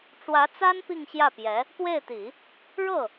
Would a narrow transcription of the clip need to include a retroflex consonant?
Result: yes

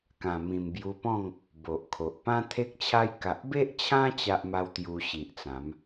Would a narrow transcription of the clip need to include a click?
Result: no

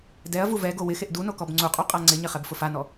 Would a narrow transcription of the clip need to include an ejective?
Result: yes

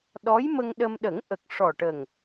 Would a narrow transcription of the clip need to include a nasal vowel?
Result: no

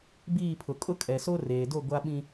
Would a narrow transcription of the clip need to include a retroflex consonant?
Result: no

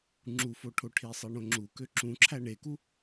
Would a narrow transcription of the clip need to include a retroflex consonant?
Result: yes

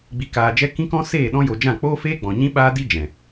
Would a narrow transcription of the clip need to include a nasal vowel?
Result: yes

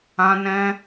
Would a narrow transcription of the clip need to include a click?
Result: no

